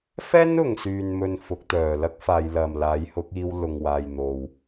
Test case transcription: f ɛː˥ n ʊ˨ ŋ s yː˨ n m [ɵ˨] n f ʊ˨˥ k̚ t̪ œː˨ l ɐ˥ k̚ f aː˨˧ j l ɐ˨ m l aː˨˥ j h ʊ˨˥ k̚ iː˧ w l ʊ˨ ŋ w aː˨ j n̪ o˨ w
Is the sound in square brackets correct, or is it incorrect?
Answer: correct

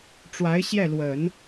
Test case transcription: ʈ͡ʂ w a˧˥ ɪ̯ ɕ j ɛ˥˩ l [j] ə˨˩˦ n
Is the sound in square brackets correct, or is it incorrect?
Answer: incorrect: w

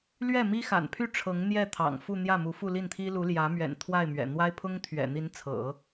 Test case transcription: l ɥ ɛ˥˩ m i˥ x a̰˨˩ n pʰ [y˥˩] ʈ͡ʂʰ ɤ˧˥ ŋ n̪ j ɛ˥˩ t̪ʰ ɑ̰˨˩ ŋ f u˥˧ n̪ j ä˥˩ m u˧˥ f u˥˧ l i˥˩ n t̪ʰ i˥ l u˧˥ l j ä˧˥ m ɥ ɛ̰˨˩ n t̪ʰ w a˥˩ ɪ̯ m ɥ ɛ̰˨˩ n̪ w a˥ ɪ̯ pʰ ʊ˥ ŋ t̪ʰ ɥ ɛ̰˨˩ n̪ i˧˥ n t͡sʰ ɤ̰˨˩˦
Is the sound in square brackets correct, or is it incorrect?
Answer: correct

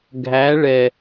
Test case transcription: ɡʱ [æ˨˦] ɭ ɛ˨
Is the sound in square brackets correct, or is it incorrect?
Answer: correct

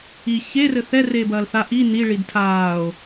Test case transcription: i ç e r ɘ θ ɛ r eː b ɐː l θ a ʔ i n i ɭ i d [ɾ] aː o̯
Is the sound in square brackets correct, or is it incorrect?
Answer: incorrect: tʰ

